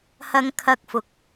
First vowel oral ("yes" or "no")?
yes